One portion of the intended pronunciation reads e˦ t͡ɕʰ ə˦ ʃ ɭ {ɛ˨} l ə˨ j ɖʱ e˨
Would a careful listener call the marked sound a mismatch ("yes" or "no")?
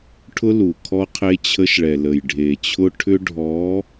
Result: no